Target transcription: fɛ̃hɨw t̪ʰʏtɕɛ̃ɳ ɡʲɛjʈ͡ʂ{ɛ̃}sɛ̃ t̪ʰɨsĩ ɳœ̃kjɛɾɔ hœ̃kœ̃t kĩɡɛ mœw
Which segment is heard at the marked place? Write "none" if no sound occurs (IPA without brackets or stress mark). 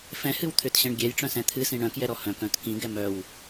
œ̃